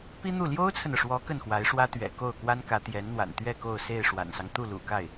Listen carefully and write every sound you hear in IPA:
pi˥n̪u˥˩ ljo˥ʊ̯t͡sʰə˨nɤ˩ʂwɔ˧˥ kə˥˩nxwa˧˥ɪ̯ʂwä˥ t̪ɥɛ̰˨˩ ko˥˩ʊ̯kwa˥nkä˧˥ t̪jɛ˧˥nn̪wa̰˨˩nt̪ɥɛ˥˧ ko˥˧ʊ̯ se˥˩ɪ̯ ʂwa̰˨˩nsɑ˦ŋ t̪u˥˩lṵ˨˩ka˥˩ɪ̯

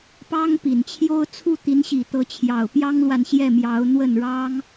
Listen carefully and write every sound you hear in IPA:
pɑ˥ŋpi˨˩nt͡ɕʰjo˥ʊ̯ t͡sʰu˥˩t̪i˧˥nɕi˨˩t̪ɤ˧˥ t͡ɕʰjɑ˨˩ʊ̯pjɑ˥ŋlwa˨n ɕjɛ˥˩mjɑ˧˥ʊ̯n̪wə˥˩n ɻɑ˥ŋ

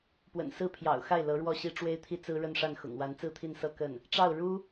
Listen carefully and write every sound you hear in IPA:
pwə̰˨˩nsɹ̩˥˩pʰjɑ̰˨˩ʊ̯xa˥˩ɪ̯ lɤ˧˥ɻwɔ˥˩ɕi˥ ʈ͡ʂwe˥ɪ̯t̪ʰi˥t͡sɹ̩˥ ɻə˥˧nʂa˥˩nxʊ̰˨˩ŋ wa˧˥nt͡sɹ̩˥˧t̪ʰi˥˧nsɤ˥˧ kə˥˩n | ʈ͡ʂɑ˥˩ʊ̯ ɻu˥

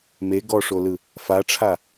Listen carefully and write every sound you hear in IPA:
me ɡɔʂolɯ | faʈ͡ʂʰa

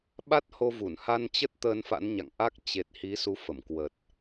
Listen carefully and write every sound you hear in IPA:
ɓa˦˥t̚ho˧vu˧˩n ha˧nt͡ɕə˦˥t̚ t̪əː˧nfa̰˧˥nɲa̰˧˨ŋʔa˦˥k̚ t͡ɕe˨˩t̚ hi˨˦su˨˦fə˧˩mkwə˨˩t̚

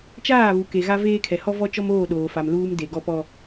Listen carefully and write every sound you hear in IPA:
t͡ʃaː˦˨βu˨ ke˨ɣa˦veː˦ kʰɛ˨hɔ˦ vɔ˦t͡ʃɔ˦moː˦˨ ɗoː˨fa˨m luː˨m de˨ɡɔ˦pɔ˦

